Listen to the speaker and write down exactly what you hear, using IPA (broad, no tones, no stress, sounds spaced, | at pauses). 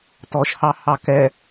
t ɔ ʃ h ɑ h ɑ k ɛ